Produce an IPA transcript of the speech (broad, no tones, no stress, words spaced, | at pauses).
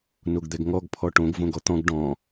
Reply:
noɡd̪ɛɡŋɔɡ pʰɔʈõɡ võɡɔt̪ɔ̃ɡ ɖɔ̃